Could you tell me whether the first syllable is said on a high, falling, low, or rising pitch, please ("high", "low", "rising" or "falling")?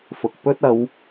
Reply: low